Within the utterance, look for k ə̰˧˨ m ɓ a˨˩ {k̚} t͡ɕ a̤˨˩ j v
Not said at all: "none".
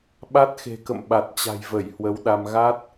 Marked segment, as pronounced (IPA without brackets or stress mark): t̚